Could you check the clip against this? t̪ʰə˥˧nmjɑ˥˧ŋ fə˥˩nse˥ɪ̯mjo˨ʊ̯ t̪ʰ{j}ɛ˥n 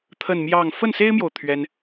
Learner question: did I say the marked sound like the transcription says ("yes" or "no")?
no